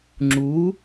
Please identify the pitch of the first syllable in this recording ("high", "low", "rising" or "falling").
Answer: rising